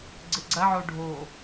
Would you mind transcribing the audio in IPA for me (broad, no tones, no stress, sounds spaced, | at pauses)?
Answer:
ɡ͡ǀ ɨ ɡ͡ǀ ɐ ʕ o ɖʱ o